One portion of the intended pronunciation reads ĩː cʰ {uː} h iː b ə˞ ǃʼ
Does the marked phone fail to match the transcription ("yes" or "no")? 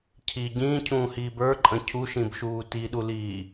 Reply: yes